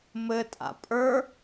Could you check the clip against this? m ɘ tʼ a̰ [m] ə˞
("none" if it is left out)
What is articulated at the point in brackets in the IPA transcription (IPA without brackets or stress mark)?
pʼ